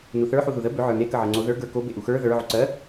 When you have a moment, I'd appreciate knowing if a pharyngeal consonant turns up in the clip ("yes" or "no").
yes